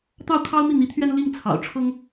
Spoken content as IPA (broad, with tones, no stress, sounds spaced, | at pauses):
t̪ ɑ˥˩ ʊ̯ kʰ ɑ˥ ʊ̯ m i˥˩ n̪ i˧˥ t̪ʰ ɥ ɛ˥ n l i˥˩ ŋ t͡sʰ ɑ̰˨˩ ʊ̯ ʈ͡ʂʰ ɤ˥ ŋ